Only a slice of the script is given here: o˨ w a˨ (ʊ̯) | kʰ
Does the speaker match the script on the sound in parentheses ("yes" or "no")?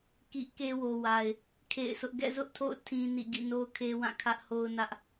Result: no